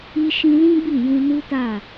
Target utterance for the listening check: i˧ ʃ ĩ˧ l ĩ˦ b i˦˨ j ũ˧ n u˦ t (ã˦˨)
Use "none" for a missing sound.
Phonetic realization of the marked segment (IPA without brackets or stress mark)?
a˦˨